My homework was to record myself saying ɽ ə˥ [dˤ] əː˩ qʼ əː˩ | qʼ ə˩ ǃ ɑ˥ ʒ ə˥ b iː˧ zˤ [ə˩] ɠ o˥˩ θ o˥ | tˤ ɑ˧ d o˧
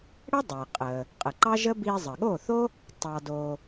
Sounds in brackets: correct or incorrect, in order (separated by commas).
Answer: correct, correct